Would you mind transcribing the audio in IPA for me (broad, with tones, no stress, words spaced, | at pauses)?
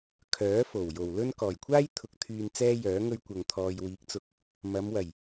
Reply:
kʰœː˨˥fo˨˩w jo˨˩wlɵ˥n kɔː˨˩jkʷʰaː˥j t̪ʰʊ˧k̚t̪ʰyː˧n t͡sɛː˥jœː˨˥ ŋɵ˥ɥkʷɐ˧ŋ t̪ʰɔː˨jwiː˨˥k̚t͡sʊ˨˥k̚ | mɐ˨˧mwɐ˨˩j